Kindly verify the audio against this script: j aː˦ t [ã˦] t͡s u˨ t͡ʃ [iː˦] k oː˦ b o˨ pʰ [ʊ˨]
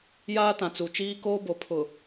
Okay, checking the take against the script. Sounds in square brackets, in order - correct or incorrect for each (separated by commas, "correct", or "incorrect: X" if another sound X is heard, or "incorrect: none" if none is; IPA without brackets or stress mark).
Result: incorrect: ã˨, correct, correct